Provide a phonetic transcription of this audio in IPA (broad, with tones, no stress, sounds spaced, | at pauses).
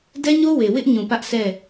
d ɛ˦ ɲ o˦ w e˨ w ɪ˦ ʔ ɲ ũ˨ p ä˦ ʔ s ɛ˦˨